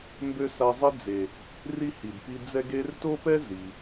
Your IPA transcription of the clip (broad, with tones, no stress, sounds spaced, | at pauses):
m b ø˥ s a˦ zˤ e˥ d͡z e˨ | r i˥ h i˨ d p i˦ d͡z ɛ˦ ɡ e˦ r t o˥ p ɛ˥ z i˩